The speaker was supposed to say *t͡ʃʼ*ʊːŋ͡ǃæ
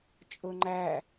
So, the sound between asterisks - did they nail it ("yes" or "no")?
yes